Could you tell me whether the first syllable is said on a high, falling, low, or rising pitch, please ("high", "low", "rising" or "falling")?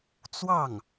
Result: falling